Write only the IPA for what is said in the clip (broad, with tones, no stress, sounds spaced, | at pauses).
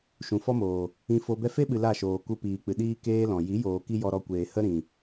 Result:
ʃ ũ˨ f ɔ˦ m oː˨ | ĩ˧ f o˧ b ɛ˧ f e˦ ɓ ɨ˨ l a˦˨ ʃ oː˨ k u˧ p iː˨ k͡p ɨ˨ ɗ iː˧ k eː˦ l ɔ̃˨ j i˨˦ j oː˨ k i˦ j ɔ˧ ɾ ɔ˧ kʷ eː˨ h ə˦ ɾ ĩ˨